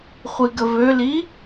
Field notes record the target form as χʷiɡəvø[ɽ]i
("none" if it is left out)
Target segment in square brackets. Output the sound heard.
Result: l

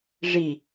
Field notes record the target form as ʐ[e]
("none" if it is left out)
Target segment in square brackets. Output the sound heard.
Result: i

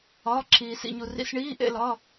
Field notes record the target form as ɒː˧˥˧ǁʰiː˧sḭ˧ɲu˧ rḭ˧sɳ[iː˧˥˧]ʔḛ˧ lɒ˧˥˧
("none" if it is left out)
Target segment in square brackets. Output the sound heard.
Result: iː˧˥˧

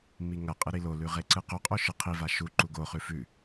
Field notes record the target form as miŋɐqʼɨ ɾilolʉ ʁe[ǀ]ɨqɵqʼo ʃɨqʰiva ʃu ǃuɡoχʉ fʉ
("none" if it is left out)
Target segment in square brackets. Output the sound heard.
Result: ǀ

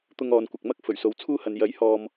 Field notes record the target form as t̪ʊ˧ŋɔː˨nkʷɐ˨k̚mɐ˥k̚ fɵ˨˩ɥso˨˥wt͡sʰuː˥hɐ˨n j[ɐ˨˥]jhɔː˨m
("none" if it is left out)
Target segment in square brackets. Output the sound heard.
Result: ɐ˨˥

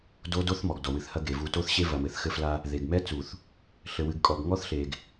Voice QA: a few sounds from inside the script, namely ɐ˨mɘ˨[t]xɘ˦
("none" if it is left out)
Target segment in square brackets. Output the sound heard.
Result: θ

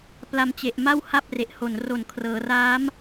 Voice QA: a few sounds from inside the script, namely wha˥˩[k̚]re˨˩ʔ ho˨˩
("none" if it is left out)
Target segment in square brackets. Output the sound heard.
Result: p̚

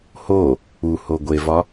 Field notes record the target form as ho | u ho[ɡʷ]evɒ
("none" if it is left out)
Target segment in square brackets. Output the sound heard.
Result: ɡʷ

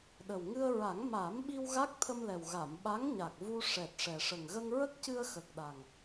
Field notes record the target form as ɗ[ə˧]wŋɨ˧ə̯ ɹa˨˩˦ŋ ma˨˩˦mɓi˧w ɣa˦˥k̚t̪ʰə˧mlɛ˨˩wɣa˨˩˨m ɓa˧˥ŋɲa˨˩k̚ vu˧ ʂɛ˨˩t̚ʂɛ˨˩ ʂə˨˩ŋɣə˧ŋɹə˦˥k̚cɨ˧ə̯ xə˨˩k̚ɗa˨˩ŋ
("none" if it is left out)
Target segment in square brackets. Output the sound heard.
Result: ə˨˩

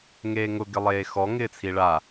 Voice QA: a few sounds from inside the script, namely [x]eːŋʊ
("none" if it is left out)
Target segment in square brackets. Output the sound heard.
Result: ŋ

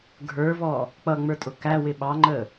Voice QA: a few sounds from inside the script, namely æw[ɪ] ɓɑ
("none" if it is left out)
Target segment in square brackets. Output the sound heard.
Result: ɪ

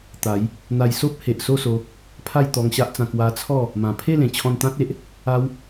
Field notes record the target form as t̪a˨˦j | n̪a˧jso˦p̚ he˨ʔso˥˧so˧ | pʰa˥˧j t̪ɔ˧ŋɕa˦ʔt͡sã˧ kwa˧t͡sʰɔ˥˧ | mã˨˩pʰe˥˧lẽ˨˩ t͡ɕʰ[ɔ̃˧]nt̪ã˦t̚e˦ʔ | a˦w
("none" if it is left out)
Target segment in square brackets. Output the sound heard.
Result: ɔ̃˧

